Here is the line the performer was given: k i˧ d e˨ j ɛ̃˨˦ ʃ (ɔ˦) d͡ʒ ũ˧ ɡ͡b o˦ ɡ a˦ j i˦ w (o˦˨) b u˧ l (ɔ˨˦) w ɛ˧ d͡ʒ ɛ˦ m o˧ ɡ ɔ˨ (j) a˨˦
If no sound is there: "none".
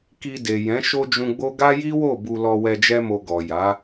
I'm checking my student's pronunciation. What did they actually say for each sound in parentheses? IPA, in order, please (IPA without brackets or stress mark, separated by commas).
o˦, o˦˨, ɔ˧, j